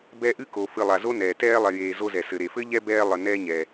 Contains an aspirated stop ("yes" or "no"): no